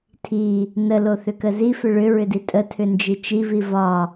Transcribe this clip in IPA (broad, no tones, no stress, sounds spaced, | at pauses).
tʰ i | n ə l o θ ʏ k ə z i f ʏ ɭ ʏ ɹ ʏ d i tʼ ə tʰ ʏ n d͡ʒ i t͡ʃ i v i v ɒ